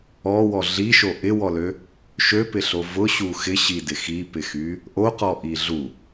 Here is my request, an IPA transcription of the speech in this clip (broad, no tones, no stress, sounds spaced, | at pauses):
ɔ w ɔ ɮ i ʃ o ʔ ɪ w ɔ l ø | ʃ ø p ɪ ɬ o v ʊ ɕ u x ɪ ɕ i d ɪ x i p ɪ x y | ʔ o q ɔ ʔ i ɮ u